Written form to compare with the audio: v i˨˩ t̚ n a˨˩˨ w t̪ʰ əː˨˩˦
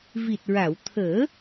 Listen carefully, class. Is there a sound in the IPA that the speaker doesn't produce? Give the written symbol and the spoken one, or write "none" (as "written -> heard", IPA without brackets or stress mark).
n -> ɹ